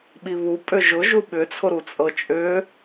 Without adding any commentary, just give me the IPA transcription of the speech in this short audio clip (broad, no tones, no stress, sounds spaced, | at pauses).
ɓ i β u pʼ ʏ ʒ ʊ ʒ u ɓ ʏ t͡sʰ ʊ ɾ u t͡sʼ ɤ t͡ʃʼ ʏ